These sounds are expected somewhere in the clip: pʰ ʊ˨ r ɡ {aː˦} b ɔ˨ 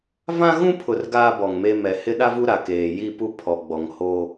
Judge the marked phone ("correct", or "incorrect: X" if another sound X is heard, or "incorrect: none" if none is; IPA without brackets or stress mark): correct